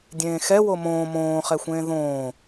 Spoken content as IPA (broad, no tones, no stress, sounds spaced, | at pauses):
dʲ ẽː x ɛ w o m õː m õː χ ɛ xʷ ẽː ð õː